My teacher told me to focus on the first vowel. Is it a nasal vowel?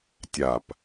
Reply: no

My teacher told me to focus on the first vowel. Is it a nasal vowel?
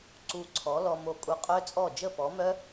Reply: no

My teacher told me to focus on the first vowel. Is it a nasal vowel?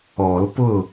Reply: no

